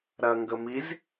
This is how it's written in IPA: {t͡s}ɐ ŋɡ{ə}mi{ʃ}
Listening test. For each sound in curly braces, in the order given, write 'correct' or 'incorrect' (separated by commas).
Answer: incorrect, correct, incorrect